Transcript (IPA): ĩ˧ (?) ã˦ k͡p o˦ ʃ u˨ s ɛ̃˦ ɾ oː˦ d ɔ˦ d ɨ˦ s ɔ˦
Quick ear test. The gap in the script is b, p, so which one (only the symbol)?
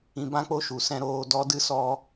b